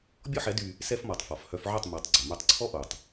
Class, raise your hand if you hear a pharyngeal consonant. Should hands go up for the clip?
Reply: yes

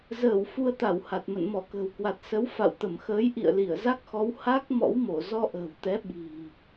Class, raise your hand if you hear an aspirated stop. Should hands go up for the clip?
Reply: no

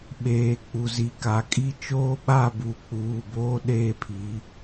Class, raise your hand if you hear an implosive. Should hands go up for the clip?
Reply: yes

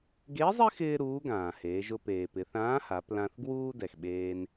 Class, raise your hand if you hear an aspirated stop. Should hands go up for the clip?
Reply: no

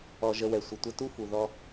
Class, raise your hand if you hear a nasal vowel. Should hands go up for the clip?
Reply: no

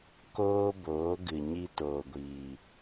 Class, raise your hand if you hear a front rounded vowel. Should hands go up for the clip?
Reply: no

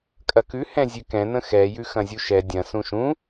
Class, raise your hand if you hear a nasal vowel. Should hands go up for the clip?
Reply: yes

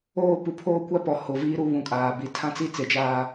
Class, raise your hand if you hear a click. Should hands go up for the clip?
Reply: no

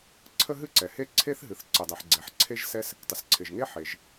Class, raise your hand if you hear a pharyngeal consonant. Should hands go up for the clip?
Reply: yes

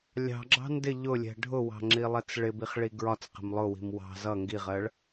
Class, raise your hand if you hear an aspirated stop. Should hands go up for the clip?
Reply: no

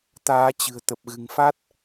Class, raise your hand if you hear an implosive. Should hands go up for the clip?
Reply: no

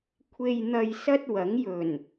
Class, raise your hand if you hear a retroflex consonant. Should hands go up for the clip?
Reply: no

